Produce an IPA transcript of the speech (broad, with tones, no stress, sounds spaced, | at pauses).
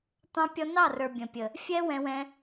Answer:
t̪ ɑ̃˧ pʲ ɔ˧ n ɑ˦˨ r ə˞˨ bʲ ə̃˨ pʲ ə˨ | fʲ ɛ˦ w ɛ̃˧ w ɛ̃˧